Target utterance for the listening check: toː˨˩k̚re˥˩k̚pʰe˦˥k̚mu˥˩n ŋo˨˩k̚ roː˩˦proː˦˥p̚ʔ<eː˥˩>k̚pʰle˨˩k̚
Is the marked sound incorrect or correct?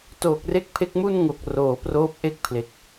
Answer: incorrect: e˥˩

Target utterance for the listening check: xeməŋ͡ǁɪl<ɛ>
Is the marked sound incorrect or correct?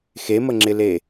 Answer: incorrect: e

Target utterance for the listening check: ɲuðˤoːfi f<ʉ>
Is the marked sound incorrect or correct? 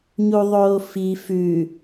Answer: correct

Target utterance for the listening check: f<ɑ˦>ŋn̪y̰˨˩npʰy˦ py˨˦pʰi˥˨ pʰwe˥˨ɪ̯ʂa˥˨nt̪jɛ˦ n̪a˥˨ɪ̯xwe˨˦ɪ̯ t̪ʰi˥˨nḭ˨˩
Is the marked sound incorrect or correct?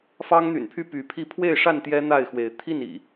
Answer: correct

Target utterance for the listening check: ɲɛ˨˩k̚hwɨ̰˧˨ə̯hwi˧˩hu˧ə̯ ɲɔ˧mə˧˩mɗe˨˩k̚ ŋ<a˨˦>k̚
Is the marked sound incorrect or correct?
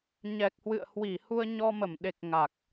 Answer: incorrect: a˨˩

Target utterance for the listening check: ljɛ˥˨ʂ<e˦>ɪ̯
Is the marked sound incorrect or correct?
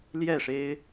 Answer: correct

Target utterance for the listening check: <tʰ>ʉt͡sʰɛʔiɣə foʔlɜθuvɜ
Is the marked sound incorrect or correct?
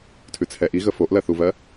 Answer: correct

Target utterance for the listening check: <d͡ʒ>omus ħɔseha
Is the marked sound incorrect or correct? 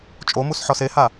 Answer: incorrect: t͡ʃʼ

